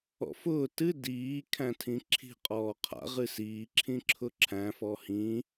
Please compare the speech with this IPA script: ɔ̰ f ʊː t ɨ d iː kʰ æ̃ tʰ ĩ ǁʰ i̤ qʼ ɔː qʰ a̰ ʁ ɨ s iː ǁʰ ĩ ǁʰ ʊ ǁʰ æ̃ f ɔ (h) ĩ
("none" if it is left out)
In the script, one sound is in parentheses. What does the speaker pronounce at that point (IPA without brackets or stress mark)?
h